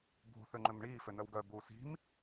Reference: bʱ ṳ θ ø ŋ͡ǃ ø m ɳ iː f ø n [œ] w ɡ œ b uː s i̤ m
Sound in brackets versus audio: correct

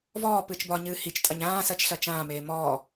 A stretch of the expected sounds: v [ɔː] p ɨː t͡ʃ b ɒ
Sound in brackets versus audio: correct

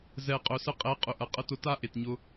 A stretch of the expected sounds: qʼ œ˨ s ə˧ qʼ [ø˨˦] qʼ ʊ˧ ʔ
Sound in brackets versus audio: incorrect: ɛ˨˦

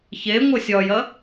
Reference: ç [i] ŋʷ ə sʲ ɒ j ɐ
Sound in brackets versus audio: incorrect: e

